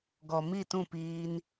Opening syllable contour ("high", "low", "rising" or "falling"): low